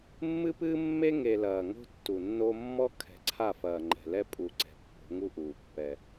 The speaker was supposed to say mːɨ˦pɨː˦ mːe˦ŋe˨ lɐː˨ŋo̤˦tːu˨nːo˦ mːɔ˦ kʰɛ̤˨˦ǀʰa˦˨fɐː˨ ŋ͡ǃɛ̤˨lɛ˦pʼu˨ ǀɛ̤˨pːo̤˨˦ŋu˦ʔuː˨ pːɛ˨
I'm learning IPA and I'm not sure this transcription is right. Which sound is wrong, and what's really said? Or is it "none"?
none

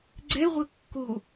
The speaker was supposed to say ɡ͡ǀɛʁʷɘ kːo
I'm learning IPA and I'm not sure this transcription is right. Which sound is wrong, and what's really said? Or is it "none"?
none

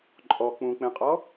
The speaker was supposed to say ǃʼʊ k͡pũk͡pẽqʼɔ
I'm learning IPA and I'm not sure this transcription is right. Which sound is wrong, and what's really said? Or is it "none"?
ʊ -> ɔ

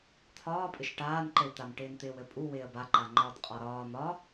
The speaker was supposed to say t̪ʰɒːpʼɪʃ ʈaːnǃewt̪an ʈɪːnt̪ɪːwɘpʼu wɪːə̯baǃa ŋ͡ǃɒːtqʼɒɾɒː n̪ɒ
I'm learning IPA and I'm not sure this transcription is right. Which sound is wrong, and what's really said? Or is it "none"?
none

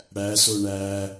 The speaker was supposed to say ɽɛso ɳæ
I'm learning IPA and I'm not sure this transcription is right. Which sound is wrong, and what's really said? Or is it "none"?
ɛ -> æ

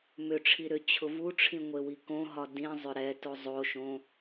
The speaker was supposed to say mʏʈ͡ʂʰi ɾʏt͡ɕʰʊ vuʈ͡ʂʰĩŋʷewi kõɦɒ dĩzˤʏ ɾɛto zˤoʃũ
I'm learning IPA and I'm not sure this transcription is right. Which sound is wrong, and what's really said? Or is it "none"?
ũ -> õ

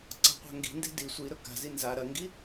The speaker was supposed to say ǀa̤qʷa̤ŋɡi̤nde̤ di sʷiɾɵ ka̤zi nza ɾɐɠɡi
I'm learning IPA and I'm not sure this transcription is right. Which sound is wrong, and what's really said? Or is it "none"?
ɠ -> ŋ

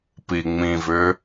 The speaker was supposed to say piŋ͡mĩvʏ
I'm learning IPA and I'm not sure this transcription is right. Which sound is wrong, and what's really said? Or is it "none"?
none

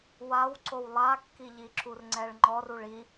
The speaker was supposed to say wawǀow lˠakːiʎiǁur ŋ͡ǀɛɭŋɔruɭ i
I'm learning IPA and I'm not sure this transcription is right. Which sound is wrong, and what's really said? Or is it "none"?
ŋ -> ŋ͡ǃ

